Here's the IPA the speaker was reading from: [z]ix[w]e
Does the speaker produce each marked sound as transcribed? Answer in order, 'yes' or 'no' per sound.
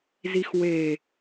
yes, yes

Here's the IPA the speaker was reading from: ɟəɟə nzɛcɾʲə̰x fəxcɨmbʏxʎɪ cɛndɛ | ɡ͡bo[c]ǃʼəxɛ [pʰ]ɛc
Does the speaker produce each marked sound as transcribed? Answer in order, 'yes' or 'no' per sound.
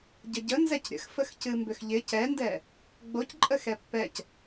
yes, no

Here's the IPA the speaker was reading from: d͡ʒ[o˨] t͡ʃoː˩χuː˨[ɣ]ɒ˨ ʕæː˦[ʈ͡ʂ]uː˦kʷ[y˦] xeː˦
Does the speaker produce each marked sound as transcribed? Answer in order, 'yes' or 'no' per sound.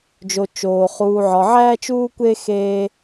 yes, no, no, no

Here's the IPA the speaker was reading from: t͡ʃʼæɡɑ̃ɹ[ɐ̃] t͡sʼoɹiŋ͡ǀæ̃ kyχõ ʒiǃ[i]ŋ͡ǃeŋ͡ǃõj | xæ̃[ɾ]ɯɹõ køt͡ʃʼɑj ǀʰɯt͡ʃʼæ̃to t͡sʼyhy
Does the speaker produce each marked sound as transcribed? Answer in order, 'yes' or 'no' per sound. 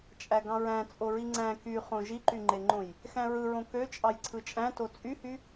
no, no, no

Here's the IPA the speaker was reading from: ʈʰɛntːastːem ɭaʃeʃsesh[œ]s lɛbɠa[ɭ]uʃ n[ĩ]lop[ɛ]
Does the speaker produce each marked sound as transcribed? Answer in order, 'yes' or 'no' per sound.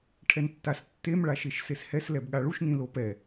no, yes, yes, yes

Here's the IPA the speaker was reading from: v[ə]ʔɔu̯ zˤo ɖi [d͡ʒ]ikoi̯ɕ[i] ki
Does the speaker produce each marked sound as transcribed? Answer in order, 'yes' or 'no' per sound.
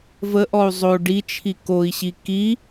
yes, no, yes

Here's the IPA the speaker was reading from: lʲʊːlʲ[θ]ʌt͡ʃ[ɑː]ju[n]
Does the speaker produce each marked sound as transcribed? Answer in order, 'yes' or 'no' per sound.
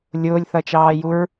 yes, yes, no

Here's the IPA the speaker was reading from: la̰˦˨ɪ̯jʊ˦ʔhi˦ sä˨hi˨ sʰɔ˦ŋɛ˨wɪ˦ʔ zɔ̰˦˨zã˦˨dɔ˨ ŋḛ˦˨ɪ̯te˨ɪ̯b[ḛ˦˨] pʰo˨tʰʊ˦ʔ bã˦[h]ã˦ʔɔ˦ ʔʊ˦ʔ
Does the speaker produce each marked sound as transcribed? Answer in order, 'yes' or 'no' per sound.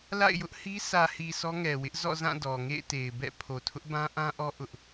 no, no

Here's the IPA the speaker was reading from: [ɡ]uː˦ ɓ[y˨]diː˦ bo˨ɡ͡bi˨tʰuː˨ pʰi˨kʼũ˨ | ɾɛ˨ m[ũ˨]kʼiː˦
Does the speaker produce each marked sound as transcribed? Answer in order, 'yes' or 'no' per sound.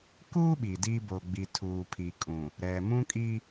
no, no, no

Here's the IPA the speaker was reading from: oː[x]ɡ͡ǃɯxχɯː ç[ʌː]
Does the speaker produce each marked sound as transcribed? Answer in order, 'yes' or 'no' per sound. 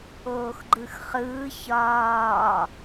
yes, no

